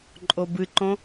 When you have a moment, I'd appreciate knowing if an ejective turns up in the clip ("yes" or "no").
yes